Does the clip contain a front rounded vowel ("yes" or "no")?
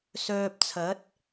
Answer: yes